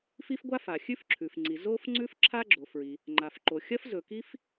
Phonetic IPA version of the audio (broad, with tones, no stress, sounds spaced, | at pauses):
f i˥ f ɡʷ a˥ f a˩ xʲ ʉ˥ f ǁʰ ʉ˩ f ŋ͡ǀ i˩ z o˥ f ŋ͡ǀ ʉ˥ f ǁʰ a˥ ɡ͡ǁ o˩ f ɹ i˩ | ŋ͡ǃ a˩ f ǃ o˩ xʲ ɐ˥ f z ɵ˩ k i˥ f